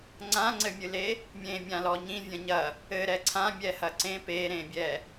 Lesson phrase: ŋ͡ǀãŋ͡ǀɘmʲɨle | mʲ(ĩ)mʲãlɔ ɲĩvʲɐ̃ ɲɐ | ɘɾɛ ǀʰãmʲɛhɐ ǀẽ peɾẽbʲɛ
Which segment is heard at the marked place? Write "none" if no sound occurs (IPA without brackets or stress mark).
ẽ